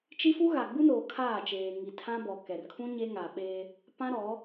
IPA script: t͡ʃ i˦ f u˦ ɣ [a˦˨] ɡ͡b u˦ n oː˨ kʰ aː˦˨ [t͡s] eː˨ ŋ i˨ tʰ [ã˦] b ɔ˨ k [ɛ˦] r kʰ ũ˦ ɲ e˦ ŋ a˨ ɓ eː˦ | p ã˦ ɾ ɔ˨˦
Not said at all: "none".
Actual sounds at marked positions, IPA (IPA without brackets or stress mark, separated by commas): a˨, t͡ʃ, ã˦, ɛ˨